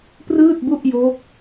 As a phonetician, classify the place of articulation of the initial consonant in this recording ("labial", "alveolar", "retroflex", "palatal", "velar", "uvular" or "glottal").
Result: labial